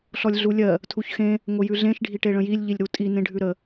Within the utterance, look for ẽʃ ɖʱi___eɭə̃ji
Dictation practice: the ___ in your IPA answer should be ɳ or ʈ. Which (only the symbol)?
ʈ